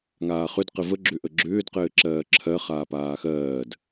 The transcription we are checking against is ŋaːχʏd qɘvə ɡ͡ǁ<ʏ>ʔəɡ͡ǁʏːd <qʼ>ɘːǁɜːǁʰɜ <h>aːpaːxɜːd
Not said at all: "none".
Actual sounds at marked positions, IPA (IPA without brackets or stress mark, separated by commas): ʏ, q, χ